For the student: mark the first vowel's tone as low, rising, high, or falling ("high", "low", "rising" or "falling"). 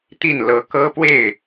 falling